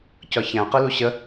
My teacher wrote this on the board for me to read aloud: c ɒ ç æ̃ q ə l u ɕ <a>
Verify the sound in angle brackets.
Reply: incorrect: ə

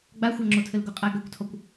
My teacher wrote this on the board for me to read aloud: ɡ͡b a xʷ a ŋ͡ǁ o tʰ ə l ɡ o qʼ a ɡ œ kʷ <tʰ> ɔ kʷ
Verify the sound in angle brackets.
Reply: correct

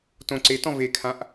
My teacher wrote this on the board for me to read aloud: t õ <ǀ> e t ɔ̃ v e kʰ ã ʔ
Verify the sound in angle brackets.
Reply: correct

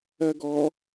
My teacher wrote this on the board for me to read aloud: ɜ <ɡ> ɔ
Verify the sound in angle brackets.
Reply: correct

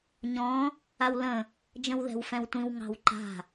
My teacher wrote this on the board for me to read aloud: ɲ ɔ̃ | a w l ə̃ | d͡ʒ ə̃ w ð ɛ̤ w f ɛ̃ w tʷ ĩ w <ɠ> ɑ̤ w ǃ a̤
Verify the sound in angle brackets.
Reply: incorrect: ŋ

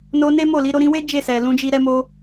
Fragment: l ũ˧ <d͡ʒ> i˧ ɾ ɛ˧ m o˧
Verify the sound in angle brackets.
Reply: correct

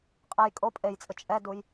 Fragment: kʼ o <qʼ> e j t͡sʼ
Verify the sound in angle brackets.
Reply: incorrect: pʼ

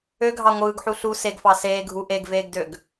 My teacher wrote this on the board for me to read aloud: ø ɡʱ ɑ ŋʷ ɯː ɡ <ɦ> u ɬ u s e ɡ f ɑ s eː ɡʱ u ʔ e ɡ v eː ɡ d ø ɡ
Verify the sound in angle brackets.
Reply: incorrect: ħ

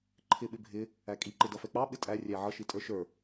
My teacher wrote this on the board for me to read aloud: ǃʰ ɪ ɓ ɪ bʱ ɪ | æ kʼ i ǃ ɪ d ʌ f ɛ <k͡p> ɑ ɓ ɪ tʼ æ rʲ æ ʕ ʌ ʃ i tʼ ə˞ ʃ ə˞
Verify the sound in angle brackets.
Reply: correct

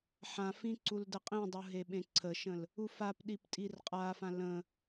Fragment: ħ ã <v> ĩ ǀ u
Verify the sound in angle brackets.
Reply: incorrect: f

